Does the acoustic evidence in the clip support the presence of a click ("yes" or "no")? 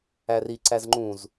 yes